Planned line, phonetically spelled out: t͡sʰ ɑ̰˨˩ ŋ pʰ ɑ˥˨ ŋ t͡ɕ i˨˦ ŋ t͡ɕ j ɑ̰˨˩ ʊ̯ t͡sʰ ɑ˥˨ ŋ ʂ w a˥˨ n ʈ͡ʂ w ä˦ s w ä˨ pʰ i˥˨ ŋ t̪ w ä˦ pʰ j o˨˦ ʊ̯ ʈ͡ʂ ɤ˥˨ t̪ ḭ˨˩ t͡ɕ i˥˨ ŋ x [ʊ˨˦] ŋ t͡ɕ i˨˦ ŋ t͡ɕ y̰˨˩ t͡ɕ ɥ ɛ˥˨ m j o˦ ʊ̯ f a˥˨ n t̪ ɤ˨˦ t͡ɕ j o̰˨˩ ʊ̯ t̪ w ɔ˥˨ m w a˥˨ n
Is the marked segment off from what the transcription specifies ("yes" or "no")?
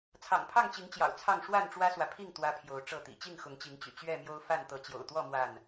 no